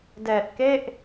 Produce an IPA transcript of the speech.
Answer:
d ɛː˨˩ t̚ k e˥˩ ʔ

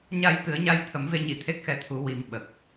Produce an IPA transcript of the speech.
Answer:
ɲ a˨˩˦ j t̪ ɨ˨˩˦ ə̯ ɲ a˧ j t̪ʰ ə˨˩˦ m v e˧ ɲ i˨˩˦ t̪ʰ e˦˥ k̚ x ɛ˧ t̪ʰ u˨˩˦ w i˨˩ m ɓ ə˨˩ k̚

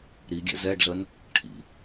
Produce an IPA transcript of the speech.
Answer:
ɾ i ɡʲ ɛ̰ z ɛ ɖ ɮ ə n | ʈʰ ḭ

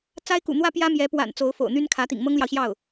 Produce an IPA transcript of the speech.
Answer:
t͡s a˥ ɪ̯ k ṵ˨˩ n̪ w ä˥ p j ä˥ m j ɛ˧˥ p w a̰˨˩ n t͡s o˧˥ ʊ̯ f o̰˨˩ ʊ̯ n̪ y˥ n kʰ ä˧˥ t̪ ḭ˨˩ ŋ m ɤ˥ ŋ l j ɑ˨ ʊ̯ ɕ j ɑ˥˩ ʊ̯

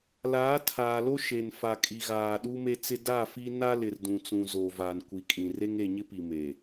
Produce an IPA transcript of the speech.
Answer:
l aː˨˦ tʰ aː˨ l o˦ ʃ e˨ n f a˨ kʼ i˨ ɣ aː˨ ɗ u˦ m e˦ t͡s ɪ˦ d a˦˨ f i˦ n a˦ l ɪ˨ r d ũ˨ t͡s ũ˨ z o˨ v a˨ n kʷ i˨ kʼ ĩ˨ r e˦ ŋ e˨ ɲ ɪ˦ p i˨ m e˨

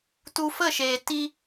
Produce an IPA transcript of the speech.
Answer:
t u˧ f ə˦˨ ʃ eː˨ t i˦

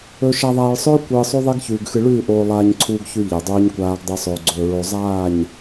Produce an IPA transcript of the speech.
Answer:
ɵ˨ ʃ a˨ ðˤ aː˨ ɭ sˤ ɵː˦ kʷ ɨː˨ sˤ o˦ ðˤ e˦ ɡ ç ʉː˨ ɡ x ɨ˨ ɭ ʉː˦˨ ʔ oː˨ lˠ aː˨ ɲ ǀʰ uː˨ ɡ ç ʉ˨ ʎ e˨ dˤ uː˦ ɲ kʷ aː˦ ɡ dˤ ɨ˨ sˤ ɵː˨ ɡ͡ǀ ɵː˨ ɹ o˨ zˤ aː˦˨ ɲ

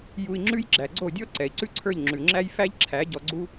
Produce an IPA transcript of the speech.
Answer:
j u˧ i̯ ŋ͡ǁ ʉ˦ j ɡ͡ǁ æ˨ ɡ͡ǀ o˦˨ dʲ ɔ˦ ǀ ɛ˨ i̯ ǀ ʉ˦ ǀʰ ə˞˦˨ ʎ ŋ͡ǁ ʉ˨ ŋ͡ǁ æ˦ j f æ˦ ʎ ǁʰ æ˨˦ ɟ ɔ˧ ɡ͡ǀ u˦

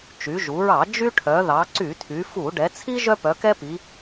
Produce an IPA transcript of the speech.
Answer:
t͡ʃ y˩˧ ʒ u˩˧ ɹ ɑ˧˩˧ d͡ʒ y˦ ʈʰ œ˩˧ ð ɑ˩˧ ǀ y˧˩˧ tʰ y˩˧ f u˧˩˧ ɖ ɛ˩˧ t͡sʰ i˦ ʒ œ˦ p œ˩˧ k ɛ˦ p i˩˧

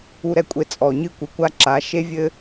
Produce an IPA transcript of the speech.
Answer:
u˧ ɾ ɛ˧ kʷʼ e˧ t͡sʼ ɔ˨ ɲ ɨ˦ kʷ i˨ kʷ a˦ ǁ a˨˦ ʃ e˦ vʲ ɘ˦

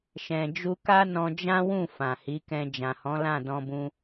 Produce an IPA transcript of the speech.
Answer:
ʃ ɛ̃˨ d͡ʒ u˧ k a˦ n ɔ̃˧ d͡ʒ ã˦ w ũ˦˨ f ã˨ h i˨˦ k ɛ̃˧ d͡ʒ ã˨ h ɔ̃˨˦ l ã˦˨ d ɔ̃˧ b ũ˧

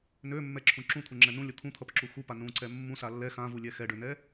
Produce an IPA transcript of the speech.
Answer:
n ø mː ɛ ǁʰ ũ ǁ ũ t̪ʰ u ŋ͡ǁ ɛ n ũ lʲ ʌ t̪ʰ ũ t̪ʰ ʌ p ǁ u x u p a n ũ ǀ ɛ mː ũ s a lː ɛ x ã v u lʲ ɛ x ɛ ɖ ø n ɛ

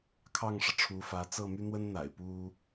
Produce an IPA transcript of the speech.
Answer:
kʰ ɑ˥˩ ŋ ʂ ɤ˩ ʈ͡ʂʰ u˧˥ f ä˧˥ t͡s ɤ˥˩ m y˥ n̪ w ə˥ n n̪ a̰˨˩ ɪ̯ p u˥

